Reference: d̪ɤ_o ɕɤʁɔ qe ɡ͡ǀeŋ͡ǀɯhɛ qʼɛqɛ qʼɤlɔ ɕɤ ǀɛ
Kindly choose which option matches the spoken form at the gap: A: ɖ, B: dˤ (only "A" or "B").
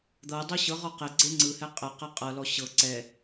B